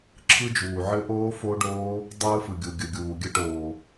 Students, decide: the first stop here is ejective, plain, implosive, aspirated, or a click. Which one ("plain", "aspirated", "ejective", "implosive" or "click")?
click